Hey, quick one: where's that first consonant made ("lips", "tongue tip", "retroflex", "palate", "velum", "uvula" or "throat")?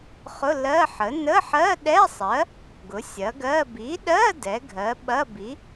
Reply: uvula